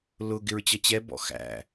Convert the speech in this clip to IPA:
lʊ ɡɪɹt͡ɕʌt͡ɕɛ bɔ̰xæ̰

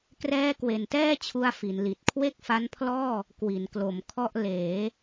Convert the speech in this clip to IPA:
krɛː˦˥kwe˨˩ntɛː˥˩t͡ɕʰu˧a̯ fi˩˦nli˨˩t̚ kʰwe˥˩k̚fa˦˥npʰlɔː˥˩ | kwi˩˦nklo˩˦mkʰɔ˥˩ʔ leː˩˦

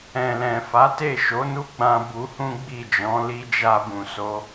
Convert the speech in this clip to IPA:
ɛ̃˨lɛ̃˨fa˨˦ te˦˨ ʃo˨˦nu˦ɡ͡bã˧ bu˧hũ˦ɡ͡bi˦˨d͡ʒɔ̃˨˦ li˧ d͡ʒa˧bũ˨ so˨˦

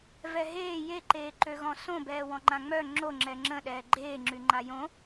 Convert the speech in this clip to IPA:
vɛɦeː jeǃeːǃøɣɔ̃ sõbɛː wɔ̃ŋ͡ǃãŋ͡mœ ŋ͡ǁo ŋ͡ǁɛŋ͡ǁə̃ ɗɛːɡ͡ǃeːŋ͡ǁyŋ͡ǃa jõ

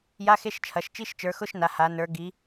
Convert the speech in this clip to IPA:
ja˧˥˧xe˧˥˧ʃt͡ʃʰɐ˩˧ʃ t͡ʃi˧˥˧ʃt͡ʃə˞˩˧xʊ˧˥˧ʃ na˩˧ha˩˧nə˞˩˧ ɡi˩˧

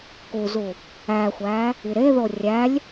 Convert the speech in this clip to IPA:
kuzu | æxʷæ | iɾeðo rʲælʲ

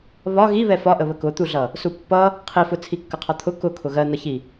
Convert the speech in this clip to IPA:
βɒ ɣi βɛfɒʔə βəkʊt̪uɮʌ | supːʌ | qʰifʊ t͡sʰikːəqʰɒt̪ʰʊ kʊkʰʊ ɣɜn̪ʌçi

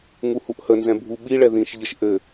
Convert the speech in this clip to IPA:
ŋuhuʔhənzɛ̃ bʱuɓi ɭɛðĩʃʎəʃ ʔɘ

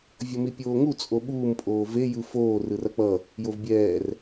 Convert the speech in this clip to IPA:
vʲʌmipʲoːŋu t͡sʼoɓuːm pʼoːve jɯfoː rɯrʌk͡pʌ | jovbʲɛːr

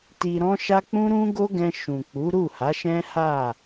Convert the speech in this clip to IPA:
ti˧ɾɔ̃˦ʃa˦ k͡pũ˦ɾũ˦ɡo˦ɡɛ̃˧ ʃũ˨k͡pu˨˦ ɾu˦˨ha˨˦ʃɛ̃˦ ha˦˨

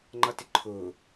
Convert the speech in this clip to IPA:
ŋ͡ǃʌtɪǃʰʊː

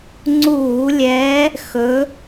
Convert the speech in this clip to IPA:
ŋ͡ǀuː˧˩˧lʲɛː˨˦ | xɵ˨˦

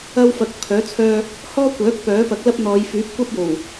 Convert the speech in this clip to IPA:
ɐ˥wfɐ˧k̚ pʰœː˨˥t͡sʰœː˧ | hɔː˥kʷœː˨˥k̚ pœː˨˥pɐ˨˥k̚lɐ˥p̚ n̪ɔː˨˧jfyː˨˥p̚kʷɐ˥p̚ jo˨˩w

